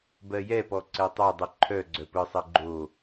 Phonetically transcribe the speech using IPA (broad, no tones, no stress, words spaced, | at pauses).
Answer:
bɜjɛpɔ ǀɛtˤœdˤɯ ǃʰœ ɡ͡ǀœpɯsˤɜ ɡ͡ǃo